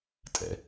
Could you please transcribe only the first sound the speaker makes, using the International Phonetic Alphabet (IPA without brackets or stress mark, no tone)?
tʼ